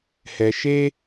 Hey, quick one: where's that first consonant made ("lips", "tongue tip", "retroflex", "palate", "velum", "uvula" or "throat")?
throat